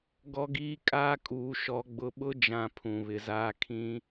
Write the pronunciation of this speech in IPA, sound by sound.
ɡɔ˦ɡiː˦ kʼaː˦kʼuː˨ʃɔ˨˦ ɡ͡bʊ˨ɓʊ˦d͡ʒã˨ pʰũ˨βɪ˨zaː˦ kʰĩ˦

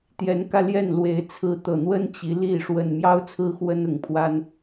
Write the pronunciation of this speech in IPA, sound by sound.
t̪jɛ˨˦nkä˧ ljɛ˥˨nlwe˨˦ɪ̯ t͡sʰɹ̩˨˦t̪ɤ˨˩n̪wə˦n t͡ɕi˨˦li˥˨ ʂwə˨˩nmjɑ˦ʊ̯ t͡sʰɹ̩˦xwə˦nʊ˨˩ŋpʰwa˦n

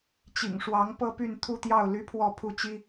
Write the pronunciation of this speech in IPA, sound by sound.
t͡ɕḭ˨˩ŋʂwɑ˧˥ŋ pɤ˥py˥˧n t̪ʰu˥˧t̪jɑ˥˩ʊ̯ ly˥pʰwɔ˥˧ pʰu˥˩t͡ɕi˥

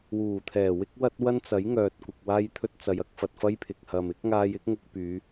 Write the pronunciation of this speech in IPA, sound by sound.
wuː˨˩t̪ʰɛː˨˩wɪ˥k̚ wɐ˥t̚wɐ˥nt͡sɐ˨˥jŋœː˨t̚ kʷɪ˨k̚ waː˥jt̪ʰɵ˥t̚t͡sɐ˨˧jɐ˨˥k̚ fɐ˨t̚fɐ˥jpʰɪ˨k̚ hɐ˨mɪ˨˥k̚ ŋaː˧jɪ˥k̚ŋʊ˧k̚pyː˨˧

